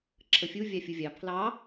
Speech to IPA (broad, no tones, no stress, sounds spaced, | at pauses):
ǁʰ ə fʲ u vʲ ɑ fʲ u vʲ ɑ pʰ l ɑ